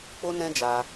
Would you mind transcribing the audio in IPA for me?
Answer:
k͡p o˦ n ɛ̃˦ d͡ʒ a˧

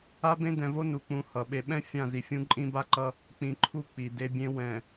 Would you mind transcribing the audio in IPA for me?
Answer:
a˦ b ẽ˦ d ɛ̃˨ v o˦ n u˨ k͡p ũ˨ h ʌ˨ ɓ e˨ ɓ ɛ̃˦ fʲ ã˦˨ z i˨ fʲ ũ˦ ǃʼ ĩ˦ b a˦ ǃ ʌ˦ | k͡p ĩ˨ ǃʰ u˦ k͡p i˨ d e˦ bʲ ẽ˦ w ɛ̃˨

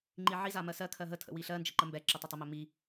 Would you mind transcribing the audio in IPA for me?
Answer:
ŋ͡ǃ i ʕ i z a m ɜ s ɜ kʰ ɜ ɦ ə tʰ ə̰ w i ɬ ɜ n d͡ʒ ə ǃ ə m b ɛ ǁ ə tˤ ʌ tˤ ə m ɵ m i

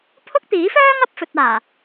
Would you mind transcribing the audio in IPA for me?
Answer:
pʰ ʊ˥ k̚ t̪ iː˨˥ f œː˥ ŋ ɐ˨˥ p̚ f ɵ˨ t̚ aː˨˩

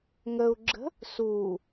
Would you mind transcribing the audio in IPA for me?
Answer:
ŋ ə u̯ ɡ͡ǁ ə̤ | s u

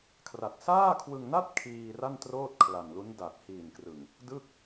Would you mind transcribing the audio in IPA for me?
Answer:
kʰ r a˨˩ t̚ s aː˥˩ kʰ w ɯ˧ ŋ n a˥˩ t̚ kʰ iː˧ r a˥˩ n t r oː˥˩ t̚ kʰ l a˨˩ n l u˦˥ n d a˨˩ t̚ h iː˨˩ n k r ɯ˨˩ ŋ | d ɯ˥˩ k̚

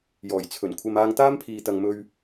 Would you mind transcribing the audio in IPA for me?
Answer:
j ɔː˨˩ j t͡sʰ ɵ˨˩ n kʷʰ ɐ˧ m aː˧ ŋ t̪ aː˥ m pʰ iː˨ t̪ ɐ˨ ŋ m ɵ˧ ɥ

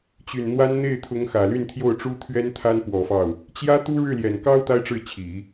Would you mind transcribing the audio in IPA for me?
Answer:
t͡ɕ y˨˩ n n̪ w a˥ n n̪ e˥˩ ɪ̯ t̪ʰ ʊ˧˥ ŋ x ä˨˩ l y˥˧ n t̪ʰ j o˥˩ ʊ̯ ʈ͡ʂ u˥ t̪ʰ ɥ ɛ˥ n t̪ʰ a˥ n p w ɔ˨˩ f ɑ˥˩ ʊ̯ | t͡ɕ j ä˥ t̪ u˥ ɻ ɻ̩˥˩ l j ɛ˨˩ n k ɑ˥ ʊ̯ t̪ a˥ ɪ̯ ʈ͡ʂ ɻ̩˥˩ t͡ɕʰ i˨˩˦

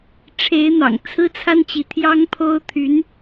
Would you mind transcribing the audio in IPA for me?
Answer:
ʈ͡ʂʰ e˧˥ ɪ̯ n̪ ɑ̰˨˩ ŋ t͡sʰ ɹ̩˥ t͡sʰ a˥ n t͡ɕ i˧˥ t̪ʰ j ɑ˥ ŋ pʰ o˥ ʊ̯ t̪ʰ y˧˥ n

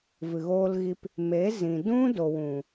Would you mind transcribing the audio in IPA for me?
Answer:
v ɨ˨ ɣ oː˧ l ɣ i˧ p | m e˨˦ z ĩ˨ d ũ˦ d o˨ w ũ˨

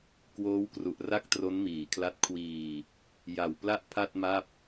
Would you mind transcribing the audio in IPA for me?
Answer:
k w oː˦˥ w k r u˨˩ ʔ r a˥˩ k̚ t r o˦˥ n m iː˨˩ kʰ l a˦˥ t̚ kʰ w iː˧ | j a˨˩ w p l a˥˩ ʔ pʰ a˥˩ t̚ m a˥˩ p̚

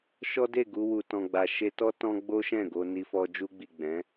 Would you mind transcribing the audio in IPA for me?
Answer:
ʃ ɔ˦ d e˦˨ ɡ u˧ w u˨ t ɔ̃˨ ɡ͡b a˨ ʃ e˧ t ɔ˦ t ɔ̃˦ ɡ͡b o˦ ʃ ɛ̃˦˨ ɡ o˧ n i˧ f ɔ˧ d͡ʒ u˧ ɡ͡b i˨ ɡ͡b ɛ̃˨˦

